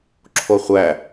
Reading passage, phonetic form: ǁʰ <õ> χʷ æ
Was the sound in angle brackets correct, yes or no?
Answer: no